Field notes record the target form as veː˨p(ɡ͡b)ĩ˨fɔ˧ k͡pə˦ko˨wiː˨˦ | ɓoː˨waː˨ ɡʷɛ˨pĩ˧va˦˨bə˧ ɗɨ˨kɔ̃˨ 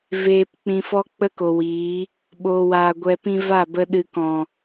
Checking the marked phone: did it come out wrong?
yes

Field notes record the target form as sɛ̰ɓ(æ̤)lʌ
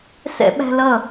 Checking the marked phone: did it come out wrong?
no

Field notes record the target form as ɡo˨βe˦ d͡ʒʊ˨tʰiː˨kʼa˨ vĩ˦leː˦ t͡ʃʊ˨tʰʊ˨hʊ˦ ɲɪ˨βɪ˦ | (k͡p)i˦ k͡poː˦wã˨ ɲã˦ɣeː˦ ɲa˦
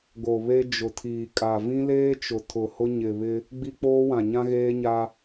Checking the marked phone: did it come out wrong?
yes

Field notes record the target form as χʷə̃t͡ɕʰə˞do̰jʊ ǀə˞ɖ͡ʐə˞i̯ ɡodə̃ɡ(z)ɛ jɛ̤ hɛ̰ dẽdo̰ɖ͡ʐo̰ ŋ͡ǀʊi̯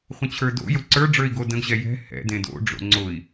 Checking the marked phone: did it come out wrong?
yes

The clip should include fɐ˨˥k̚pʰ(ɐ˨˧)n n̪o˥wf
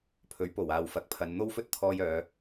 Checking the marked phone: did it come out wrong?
no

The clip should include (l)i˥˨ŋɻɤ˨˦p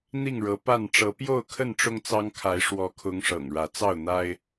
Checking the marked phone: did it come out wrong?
yes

